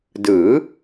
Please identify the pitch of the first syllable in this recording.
rising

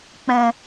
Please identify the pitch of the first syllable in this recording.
low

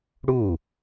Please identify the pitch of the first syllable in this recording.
falling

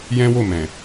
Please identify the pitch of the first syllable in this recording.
high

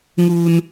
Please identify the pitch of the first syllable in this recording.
high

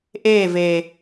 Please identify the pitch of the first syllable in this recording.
falling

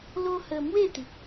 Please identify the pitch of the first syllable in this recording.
high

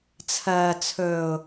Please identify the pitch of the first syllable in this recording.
low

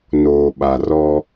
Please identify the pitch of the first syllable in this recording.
low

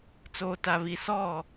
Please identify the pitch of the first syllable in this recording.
low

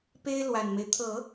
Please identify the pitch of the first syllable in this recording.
high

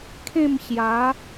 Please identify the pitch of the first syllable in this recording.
falling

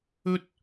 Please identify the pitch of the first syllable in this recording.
high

